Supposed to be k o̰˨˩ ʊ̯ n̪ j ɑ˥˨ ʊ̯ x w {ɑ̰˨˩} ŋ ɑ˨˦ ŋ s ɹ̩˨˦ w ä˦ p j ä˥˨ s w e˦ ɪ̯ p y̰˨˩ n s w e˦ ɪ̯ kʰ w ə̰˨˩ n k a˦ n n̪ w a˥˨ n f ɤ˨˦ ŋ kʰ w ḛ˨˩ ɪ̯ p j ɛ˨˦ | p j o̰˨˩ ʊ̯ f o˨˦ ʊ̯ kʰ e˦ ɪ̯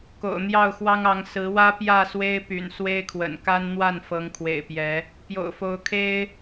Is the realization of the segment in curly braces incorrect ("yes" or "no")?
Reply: yes